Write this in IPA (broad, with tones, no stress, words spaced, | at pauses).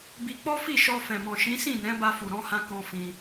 bi˧k͡pɔ˦fi˦˨ ʃɔ˧fɛ̃˨mɔ̃˨ʃĩ˨˦ sĩ˦˨nɛ̃˨˦ ba˧fu˨ɾɔ̃˧hã˧ kɔ̃˦fĩ˧